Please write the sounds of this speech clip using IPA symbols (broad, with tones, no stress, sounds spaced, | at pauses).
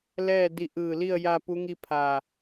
l ɛː˥˨ d i˧ ʔ ɯː˧˩ l i˥˨ ə̯ j a˧ p u˧˥ ŋ i˥˨ pʰ a˧˩